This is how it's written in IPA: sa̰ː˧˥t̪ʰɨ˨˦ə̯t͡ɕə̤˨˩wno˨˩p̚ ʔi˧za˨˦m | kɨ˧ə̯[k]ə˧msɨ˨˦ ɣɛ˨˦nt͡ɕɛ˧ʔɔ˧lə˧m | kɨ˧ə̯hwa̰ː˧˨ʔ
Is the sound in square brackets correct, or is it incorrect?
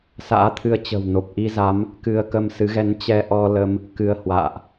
correct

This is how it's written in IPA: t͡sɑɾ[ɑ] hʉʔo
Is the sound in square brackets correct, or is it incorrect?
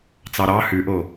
correct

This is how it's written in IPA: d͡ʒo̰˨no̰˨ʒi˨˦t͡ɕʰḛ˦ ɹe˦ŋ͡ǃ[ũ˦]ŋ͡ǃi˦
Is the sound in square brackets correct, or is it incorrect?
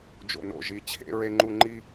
incorrect: u˦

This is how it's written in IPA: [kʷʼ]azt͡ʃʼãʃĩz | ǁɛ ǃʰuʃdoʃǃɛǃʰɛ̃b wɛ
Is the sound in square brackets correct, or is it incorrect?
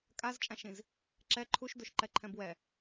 incorrect: kʼ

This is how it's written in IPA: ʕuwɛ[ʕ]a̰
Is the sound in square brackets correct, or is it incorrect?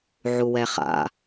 incorrect: χ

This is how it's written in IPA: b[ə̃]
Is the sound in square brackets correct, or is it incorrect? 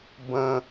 correct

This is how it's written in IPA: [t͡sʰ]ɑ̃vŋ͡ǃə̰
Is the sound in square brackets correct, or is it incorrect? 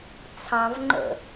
correct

